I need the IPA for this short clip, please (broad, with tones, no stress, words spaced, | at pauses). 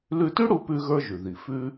lʉ˧tʉ˥ɽu˧pʉ˧ ɣə˞˥ʒʉ˩ði˩ fʉ˥